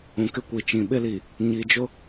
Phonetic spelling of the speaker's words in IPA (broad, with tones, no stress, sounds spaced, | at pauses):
ũ˨ k ɪ˦ kʷ i˨ t͡ʃ ĩ˨ ɓ ɪ˦ l i˨ | ɲ i˨ d͡ʒ ʊ˦